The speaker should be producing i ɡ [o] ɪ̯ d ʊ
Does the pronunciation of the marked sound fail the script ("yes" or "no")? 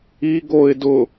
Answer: no